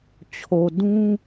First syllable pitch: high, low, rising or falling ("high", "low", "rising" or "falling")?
low